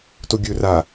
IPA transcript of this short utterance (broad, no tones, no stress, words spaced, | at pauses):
toɡʲɵ ra